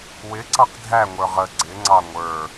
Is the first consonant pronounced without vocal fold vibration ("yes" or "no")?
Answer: no